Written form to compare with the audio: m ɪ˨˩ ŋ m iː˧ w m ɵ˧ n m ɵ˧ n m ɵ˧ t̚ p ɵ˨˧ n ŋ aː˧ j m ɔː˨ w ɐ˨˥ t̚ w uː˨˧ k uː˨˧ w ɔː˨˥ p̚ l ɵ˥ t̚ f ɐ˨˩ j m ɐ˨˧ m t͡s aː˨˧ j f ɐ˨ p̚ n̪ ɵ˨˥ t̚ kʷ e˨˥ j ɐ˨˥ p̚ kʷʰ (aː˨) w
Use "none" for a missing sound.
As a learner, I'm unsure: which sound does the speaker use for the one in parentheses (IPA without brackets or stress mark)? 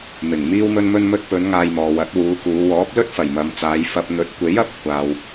aː˨